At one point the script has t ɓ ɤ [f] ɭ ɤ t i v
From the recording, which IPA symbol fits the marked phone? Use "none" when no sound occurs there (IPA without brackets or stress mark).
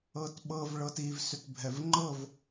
v